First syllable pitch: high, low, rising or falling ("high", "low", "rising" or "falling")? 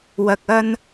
low